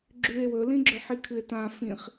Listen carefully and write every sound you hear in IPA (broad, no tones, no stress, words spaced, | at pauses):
ɡ͡ǁʉe̯ wɵlĩ ɡ͡ǁɵħikʰɨe̯tã fĩχ